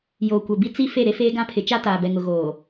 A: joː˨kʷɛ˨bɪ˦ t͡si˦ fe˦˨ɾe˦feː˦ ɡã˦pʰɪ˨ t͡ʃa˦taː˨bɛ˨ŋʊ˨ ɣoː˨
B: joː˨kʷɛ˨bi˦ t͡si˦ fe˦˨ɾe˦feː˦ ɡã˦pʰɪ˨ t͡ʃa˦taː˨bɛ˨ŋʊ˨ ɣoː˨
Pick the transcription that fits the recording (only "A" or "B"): B